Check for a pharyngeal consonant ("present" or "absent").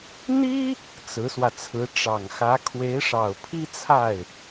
absent